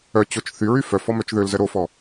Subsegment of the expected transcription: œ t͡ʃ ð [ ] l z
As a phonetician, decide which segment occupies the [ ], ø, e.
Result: ø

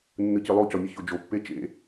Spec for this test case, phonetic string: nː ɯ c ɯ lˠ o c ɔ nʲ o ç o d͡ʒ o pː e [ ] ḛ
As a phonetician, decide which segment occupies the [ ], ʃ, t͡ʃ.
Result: t͡ʃ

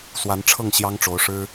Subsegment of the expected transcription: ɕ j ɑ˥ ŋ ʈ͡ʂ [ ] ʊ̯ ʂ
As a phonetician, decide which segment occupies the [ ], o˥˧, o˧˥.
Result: o˧˥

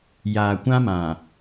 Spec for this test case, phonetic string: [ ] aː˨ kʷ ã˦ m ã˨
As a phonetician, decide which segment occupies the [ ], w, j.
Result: j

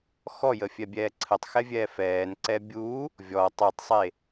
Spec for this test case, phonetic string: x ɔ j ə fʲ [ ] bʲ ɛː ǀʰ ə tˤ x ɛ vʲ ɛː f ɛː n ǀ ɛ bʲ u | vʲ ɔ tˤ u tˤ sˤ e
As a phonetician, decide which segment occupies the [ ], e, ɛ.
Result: ɛ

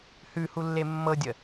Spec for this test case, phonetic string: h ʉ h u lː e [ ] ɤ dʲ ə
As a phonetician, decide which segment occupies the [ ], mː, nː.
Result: mː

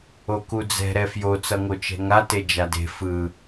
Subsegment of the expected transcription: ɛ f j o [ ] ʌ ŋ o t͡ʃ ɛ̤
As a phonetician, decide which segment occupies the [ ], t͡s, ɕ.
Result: t͡s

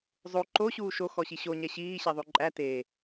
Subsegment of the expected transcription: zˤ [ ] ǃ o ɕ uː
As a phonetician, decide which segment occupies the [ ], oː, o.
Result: o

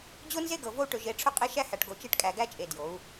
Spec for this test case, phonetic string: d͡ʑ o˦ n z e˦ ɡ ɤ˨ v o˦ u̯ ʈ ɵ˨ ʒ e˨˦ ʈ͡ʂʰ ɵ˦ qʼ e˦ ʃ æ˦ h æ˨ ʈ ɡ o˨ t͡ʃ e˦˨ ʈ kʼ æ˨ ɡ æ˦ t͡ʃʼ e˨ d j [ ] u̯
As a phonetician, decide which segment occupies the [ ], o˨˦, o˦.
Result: o˨˦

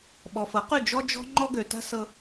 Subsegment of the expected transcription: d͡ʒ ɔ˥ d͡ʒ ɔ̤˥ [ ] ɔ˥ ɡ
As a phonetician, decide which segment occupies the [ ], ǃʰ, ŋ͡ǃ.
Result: ŋ͡ǃ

